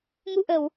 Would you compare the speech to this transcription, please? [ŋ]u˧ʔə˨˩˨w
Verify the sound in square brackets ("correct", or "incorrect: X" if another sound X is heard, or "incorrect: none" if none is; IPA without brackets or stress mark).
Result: correct